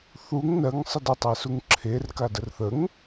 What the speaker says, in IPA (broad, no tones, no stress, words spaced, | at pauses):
θuŋ nɜŋ sˤədətˤesuŋ ǁʰerka dərθəŋ